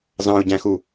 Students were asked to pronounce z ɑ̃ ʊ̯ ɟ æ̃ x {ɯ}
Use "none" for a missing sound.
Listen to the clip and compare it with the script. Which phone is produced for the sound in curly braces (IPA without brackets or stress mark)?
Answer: u